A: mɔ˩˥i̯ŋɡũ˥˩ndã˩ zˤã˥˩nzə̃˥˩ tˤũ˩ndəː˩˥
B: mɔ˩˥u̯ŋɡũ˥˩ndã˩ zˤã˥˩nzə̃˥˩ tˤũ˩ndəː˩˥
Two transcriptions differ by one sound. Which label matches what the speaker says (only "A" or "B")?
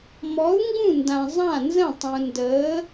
B